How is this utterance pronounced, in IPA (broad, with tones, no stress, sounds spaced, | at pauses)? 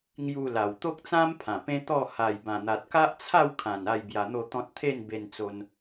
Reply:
ŋ j u˧ l a˨˩ w t̪ o˦ k̚ t͡s ã˦ m pʰ ã˨˩ p ẽ˦ t̪ ɔ˥˧ h a˨˩ j b ã˨˩ n̪ a˨ t̚ k a˦ ʔ t͡sʰ a˥˧ w kʰ ã˨˩ n a˥˧ j b j a˧ n̪ o˥˧ t̪ ɔ̃˦ t̚ t̪ʰ e˥˧ n b e˧ n t͡s o˧ n